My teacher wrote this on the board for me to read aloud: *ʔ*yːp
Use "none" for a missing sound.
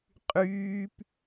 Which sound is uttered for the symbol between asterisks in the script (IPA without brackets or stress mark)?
qʼ